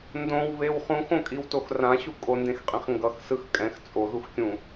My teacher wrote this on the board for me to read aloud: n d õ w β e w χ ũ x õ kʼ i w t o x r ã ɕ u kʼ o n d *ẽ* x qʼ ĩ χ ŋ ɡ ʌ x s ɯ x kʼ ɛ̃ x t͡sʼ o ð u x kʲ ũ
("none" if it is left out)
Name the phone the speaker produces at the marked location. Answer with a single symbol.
ẽ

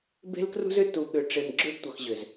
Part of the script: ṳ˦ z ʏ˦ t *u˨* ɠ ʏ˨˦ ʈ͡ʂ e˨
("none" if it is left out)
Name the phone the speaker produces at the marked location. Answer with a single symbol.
u˨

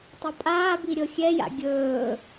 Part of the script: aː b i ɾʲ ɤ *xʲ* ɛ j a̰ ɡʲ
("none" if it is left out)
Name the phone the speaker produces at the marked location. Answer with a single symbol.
xʲ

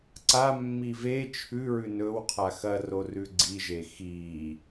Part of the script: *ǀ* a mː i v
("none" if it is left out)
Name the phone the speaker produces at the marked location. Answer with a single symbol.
ǀ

